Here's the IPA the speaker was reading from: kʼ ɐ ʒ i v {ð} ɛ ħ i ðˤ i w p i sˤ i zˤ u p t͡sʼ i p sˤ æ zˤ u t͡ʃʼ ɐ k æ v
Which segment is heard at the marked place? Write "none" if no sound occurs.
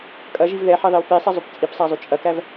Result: ð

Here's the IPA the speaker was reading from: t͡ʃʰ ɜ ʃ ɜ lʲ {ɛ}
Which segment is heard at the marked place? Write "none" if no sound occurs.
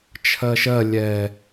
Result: ɛ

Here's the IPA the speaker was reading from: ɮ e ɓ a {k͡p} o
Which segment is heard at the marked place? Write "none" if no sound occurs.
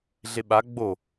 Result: ɡ͡b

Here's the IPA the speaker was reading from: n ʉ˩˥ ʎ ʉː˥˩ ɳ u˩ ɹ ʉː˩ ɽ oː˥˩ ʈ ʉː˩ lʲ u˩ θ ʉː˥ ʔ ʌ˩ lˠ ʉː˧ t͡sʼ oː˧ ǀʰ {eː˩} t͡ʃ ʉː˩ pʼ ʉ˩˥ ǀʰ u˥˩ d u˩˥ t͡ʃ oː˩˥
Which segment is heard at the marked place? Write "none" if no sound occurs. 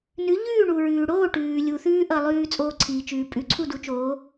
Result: iː˩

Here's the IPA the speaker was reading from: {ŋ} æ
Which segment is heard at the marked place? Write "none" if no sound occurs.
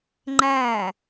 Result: ŋ͡ǃ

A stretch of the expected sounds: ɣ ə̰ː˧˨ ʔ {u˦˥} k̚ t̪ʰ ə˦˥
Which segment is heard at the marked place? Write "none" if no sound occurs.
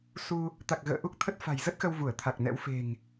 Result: u˦˥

